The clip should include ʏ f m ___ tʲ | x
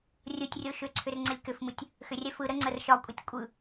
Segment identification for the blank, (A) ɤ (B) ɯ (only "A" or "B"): B